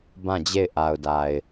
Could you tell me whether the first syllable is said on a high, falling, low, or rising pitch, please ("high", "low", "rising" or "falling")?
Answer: falling